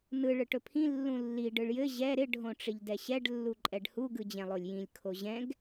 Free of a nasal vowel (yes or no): no